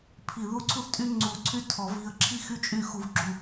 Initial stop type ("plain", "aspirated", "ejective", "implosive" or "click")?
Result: aspirated